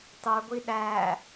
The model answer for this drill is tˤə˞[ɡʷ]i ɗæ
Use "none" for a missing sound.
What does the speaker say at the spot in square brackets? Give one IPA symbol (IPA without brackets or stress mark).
ɡʷ